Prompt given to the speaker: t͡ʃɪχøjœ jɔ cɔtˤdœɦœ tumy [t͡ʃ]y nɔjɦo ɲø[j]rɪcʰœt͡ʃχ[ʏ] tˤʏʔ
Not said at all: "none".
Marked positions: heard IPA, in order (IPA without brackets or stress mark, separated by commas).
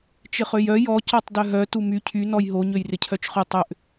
cʰ, j, ʏ